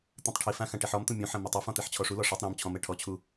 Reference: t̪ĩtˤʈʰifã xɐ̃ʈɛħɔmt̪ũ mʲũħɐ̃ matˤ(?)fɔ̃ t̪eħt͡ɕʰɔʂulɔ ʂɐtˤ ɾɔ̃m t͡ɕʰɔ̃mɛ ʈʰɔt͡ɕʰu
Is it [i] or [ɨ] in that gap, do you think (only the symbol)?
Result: ɨ